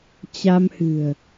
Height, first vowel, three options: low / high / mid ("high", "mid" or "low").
low